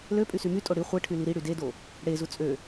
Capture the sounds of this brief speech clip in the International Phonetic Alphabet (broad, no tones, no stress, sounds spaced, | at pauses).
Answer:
l ø pʼ y s y m y tʼ o ɽ i χʷ e ʈʰ y l i ɾ i ɽ y d e d o | ɽ e z u t͡sʼ ø